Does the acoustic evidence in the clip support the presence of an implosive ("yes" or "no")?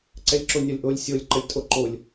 no